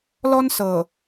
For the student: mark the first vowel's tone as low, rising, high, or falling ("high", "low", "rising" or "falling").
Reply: high